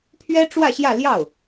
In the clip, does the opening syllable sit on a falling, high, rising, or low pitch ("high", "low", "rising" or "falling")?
high